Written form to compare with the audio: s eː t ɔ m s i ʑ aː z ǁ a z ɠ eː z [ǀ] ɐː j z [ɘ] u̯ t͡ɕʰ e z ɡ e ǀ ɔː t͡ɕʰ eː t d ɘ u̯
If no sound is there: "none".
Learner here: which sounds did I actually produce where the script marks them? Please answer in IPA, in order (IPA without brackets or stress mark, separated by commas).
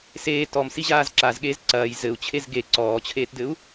ǀ, ɘ